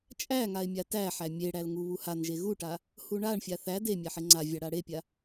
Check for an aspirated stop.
absent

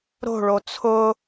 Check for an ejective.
absent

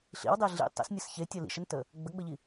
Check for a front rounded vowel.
absent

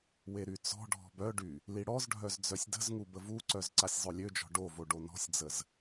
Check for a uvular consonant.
absent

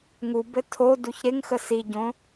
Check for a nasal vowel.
present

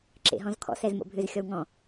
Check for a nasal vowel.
present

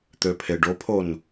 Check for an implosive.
absent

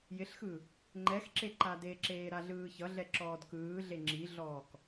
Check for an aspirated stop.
absent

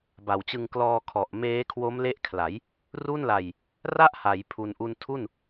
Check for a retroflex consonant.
absent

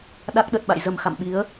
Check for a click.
absent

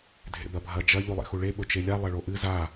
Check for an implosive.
present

